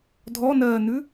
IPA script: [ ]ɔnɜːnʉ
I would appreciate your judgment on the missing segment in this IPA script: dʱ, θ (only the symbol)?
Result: dʱ